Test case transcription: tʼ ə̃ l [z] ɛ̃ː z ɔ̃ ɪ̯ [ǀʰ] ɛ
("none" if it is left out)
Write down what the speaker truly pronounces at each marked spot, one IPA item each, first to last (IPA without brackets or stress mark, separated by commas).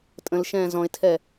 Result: ʃ, tʰ